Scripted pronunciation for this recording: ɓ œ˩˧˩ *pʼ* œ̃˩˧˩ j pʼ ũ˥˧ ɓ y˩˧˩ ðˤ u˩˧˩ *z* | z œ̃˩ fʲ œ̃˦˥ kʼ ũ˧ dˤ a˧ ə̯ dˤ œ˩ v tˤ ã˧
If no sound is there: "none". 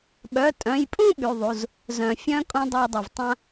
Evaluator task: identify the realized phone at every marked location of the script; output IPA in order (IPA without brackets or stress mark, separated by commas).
tʼ, z